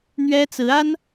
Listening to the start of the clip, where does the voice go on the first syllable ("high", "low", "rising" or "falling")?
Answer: high